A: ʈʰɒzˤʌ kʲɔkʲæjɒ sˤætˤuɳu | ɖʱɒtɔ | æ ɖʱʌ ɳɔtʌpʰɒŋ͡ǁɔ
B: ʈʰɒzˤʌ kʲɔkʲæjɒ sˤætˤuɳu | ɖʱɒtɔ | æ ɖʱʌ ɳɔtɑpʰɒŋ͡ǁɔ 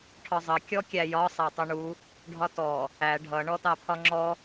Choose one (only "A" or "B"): B